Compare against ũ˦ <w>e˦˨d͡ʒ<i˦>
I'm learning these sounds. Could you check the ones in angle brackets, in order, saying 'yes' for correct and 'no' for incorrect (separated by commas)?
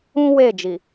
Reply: yes, no